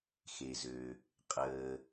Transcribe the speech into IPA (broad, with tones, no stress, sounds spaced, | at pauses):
x e˩ z ø˩ | qʼ əː˩